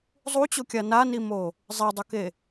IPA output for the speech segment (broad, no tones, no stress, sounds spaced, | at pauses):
zˤ u t͡ɕ o kʲ a n a n i m o | zˤ i dˤ u k e